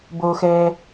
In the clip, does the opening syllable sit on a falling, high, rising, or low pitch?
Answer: low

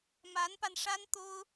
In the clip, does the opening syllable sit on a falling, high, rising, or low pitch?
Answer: rising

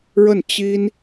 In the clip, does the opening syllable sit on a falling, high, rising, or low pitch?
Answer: falling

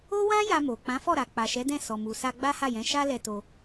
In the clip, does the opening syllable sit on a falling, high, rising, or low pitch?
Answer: high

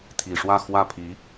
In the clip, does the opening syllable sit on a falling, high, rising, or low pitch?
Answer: low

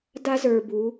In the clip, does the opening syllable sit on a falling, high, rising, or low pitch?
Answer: high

